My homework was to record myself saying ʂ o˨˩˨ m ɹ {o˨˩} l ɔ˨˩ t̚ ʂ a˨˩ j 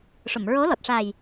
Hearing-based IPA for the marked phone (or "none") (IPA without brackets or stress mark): o˧˥